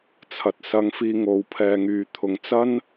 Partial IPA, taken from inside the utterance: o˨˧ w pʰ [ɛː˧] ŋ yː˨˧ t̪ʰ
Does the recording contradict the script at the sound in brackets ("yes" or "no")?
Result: no